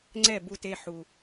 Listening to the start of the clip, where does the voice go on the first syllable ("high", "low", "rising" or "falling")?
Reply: falling